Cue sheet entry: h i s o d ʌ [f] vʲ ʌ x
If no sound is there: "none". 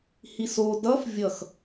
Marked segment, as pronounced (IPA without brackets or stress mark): f